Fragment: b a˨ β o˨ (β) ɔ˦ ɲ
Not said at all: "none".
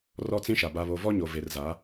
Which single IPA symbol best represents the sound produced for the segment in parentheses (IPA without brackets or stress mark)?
v